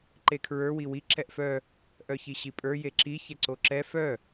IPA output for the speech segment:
ǃ e kʰ ɹ ə˞ w i w i ǁ ɛ ʔ f œ | ʔ œ ç i ɕ i pʼ ə˞ j e ǁ i ç ɛ ǀ o ǁ ɛ f œ

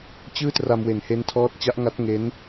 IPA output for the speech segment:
t͡ɕ ɯː˥˩ t r a˧ m w e˨˩ n h e˦˥ n tʰ ɔː˦˥ t̚ t͡ɕ a˦˥ ʔ ŋ a˦˥ t̚ ŋ e˦˥ n

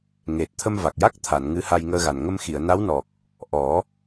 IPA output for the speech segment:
ŋ e˨˩ t̚ t̪ʰ ə˧ m v a˨˩ k̚ j a˦˥ k̚ t̪ʰ a˨˩˨ n ŋ ɨ˧˥ h a˧ j ŋ əː˧ ɣ a˨˩ n ŋ ə˧ m x i˨˩˨ ə̯ n a˧˥ w n ɔ˨˩ k̚ | ʔ ɔ˨˩˦

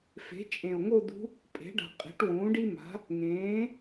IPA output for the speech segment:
f e̤˩˥ t͡ʃʼ ẽ˨˩ o̯ ŋ o˥˧ d̪ ṳ˧˥ | pʼ e̤˩˥ ɖ a̤˨˩ qʼ e̤˩˥ ʈ w ũː˩˥ ɖ i˥ m a̤˩˥ | ŋ ẽː˩˥

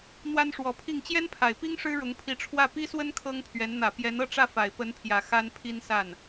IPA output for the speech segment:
n̪ w a˥ n ʂ w ɔ˧˥ pʰ i˥˩ ŋ t͡ɕ j ɛ˥ n pʰ a˨˩ ɪ̯ p i˥ ŋ ʂ ɻ̩˥ ɻ ʊ˧˥ ŋ pʰ i˧˥ ʈ͡ʂʰ w ä˥˩ p i˥ s w ə˥ n kʰ ɤ˥ ŋ pʰ ɥ ɛ˧˥ n n̪ ä˨˩ p j ɛ˧˥ n ɤ˥˧ ʈ͡ʂ ä˥˩ f a˨˩ ɪ̯ p ə˧˥ n pʰ j ä˨˩ x a˥ n pʰ i˥ n s a˥˩ n

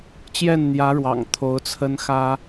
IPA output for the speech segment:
t͡ɕ j ɛ˥˩ n n̪ j ä˧˥ ɻ w ɑ̰˨˩ ŋ t̪ʰ o˧˥ ʊ̯ t͡sʰ ə˥ n x ä˥

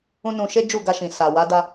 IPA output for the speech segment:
ũ˦ n ũ˧ ʃ e˦ d͡ʒ u˦˨ ɡ a˧ ʃ ĩ˨ s a˨ w a˨˦ d a˧

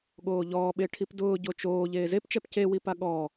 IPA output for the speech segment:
ɠ oː ʎ ɔː ɓ e ʈʰ i p d ʊː ɟ o t͡ʃ oː ʎ eː z e p t͡ʃ ɛ p c e w i p a ɠ ɔ

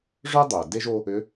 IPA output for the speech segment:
ʐ œ˦ dˤ ʏː˩ d e˦ ʒ o˦ | ʏ˨˦

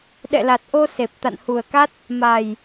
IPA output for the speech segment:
ɗ ɛ̰˧˨ l a˨˩ t̚ ʔ o˧ s e˨˩ p̚ t̪ a̰˧˨ n h u˨˩ ə̯ k a˦˥ t̚ | m a˨˩ j

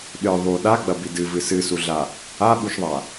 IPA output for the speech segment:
ɗ ɨ ðˤ u ɗ a ɡ͡b ɐ b i d ɨ v ɨ s ɨ s u ɮ a | a ɓ u ʃ ðˤ a

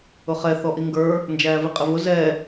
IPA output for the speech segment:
ʊ χ ɛ θ ɔ ʔ i ŋ ɡ ə˞ | n d͡ʒ æː v i qʼ ɪ v ʊ z ɛ

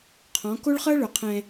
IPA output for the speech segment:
qʰ ɔ̃˨˦ k o˦ ɭ χ ɤ˦ ɭ ɵ˨ qʰ ɛ̃˦

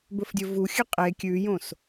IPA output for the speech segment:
b ɵ f dʲ ɵ v u xʲ ɨ qʼ e kʲ ʉ j õ s

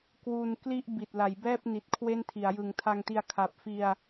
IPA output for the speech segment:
k w u˧ n k l i˥˩ ʔ b i˨˩ t̚ l a˩˦ j b ɛː˥˩ p̚ n i˨˩ t̚ kʰ w e˥˩ n tʰ i˩˦ a̯ j ɯ˨˩ ŋ tʰ a˧ ŋ t i˧ a̯ kʰ a˨˩ p̚ f i˧ a̯

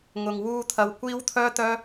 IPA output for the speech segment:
ŋ ʊ˨ ŋ w uː˧ t̪ʰ ɐ˧ w kʷ iː˥ w t̪ʰ œː˥ t̪ œː˥

